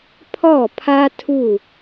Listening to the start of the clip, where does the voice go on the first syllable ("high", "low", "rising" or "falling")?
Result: falling